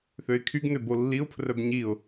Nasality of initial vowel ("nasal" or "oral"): oral